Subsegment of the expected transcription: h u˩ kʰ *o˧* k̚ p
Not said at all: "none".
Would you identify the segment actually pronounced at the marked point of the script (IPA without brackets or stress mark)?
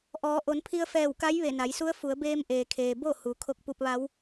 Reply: o˧